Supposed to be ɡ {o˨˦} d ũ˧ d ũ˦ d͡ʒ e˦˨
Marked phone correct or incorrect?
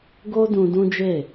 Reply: incorrect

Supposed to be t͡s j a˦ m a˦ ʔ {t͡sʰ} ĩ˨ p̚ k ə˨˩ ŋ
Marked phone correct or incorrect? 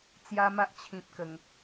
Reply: incorrect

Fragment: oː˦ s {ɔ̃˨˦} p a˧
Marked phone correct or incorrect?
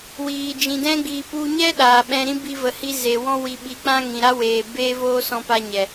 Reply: incorrect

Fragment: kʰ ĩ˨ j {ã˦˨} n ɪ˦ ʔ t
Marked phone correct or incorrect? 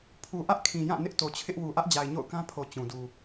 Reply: correct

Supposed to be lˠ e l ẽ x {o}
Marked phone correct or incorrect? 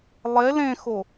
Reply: correct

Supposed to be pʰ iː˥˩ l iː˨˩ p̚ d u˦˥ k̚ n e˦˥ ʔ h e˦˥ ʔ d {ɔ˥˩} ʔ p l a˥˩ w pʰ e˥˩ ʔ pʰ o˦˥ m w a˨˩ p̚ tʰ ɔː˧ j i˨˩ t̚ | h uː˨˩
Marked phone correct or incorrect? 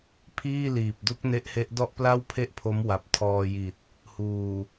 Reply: correct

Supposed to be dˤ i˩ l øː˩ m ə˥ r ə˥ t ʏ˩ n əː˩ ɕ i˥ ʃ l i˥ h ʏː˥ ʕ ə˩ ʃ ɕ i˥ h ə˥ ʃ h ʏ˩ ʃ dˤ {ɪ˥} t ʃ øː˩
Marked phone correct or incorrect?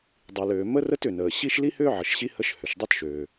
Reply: incorrect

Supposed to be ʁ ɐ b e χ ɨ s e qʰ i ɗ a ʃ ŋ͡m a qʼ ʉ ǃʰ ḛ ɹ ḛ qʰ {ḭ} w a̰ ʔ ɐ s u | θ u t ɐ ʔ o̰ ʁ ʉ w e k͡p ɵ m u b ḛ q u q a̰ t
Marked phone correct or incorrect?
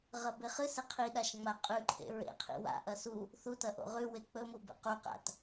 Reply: correct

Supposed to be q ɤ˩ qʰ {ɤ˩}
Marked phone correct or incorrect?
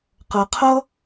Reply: incorrect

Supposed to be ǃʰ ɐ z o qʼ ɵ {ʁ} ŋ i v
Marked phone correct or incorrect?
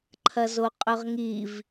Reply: correct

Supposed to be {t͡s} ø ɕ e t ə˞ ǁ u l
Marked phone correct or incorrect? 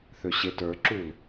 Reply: incorrect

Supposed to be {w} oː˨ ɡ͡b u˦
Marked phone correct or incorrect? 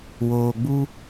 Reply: correct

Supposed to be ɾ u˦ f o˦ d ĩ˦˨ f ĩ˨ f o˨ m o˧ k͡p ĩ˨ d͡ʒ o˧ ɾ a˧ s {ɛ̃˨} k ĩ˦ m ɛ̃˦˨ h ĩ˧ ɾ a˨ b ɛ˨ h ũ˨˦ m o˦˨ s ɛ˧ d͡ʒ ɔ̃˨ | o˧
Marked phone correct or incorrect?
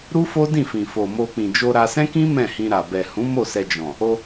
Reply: incorrect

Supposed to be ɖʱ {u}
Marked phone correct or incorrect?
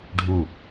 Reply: correct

